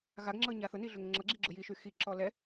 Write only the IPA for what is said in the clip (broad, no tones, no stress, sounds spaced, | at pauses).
ɣ a ɡ ŋ͡ǁ ɤ ɲ a θ ʊ n i ɮ ʊ ŋ ŋ͡ǁ ɤ ɡ͡ǁ i ɡ͡ǁ ʊ j i ʃ y x i ǁ ɔ l ɛ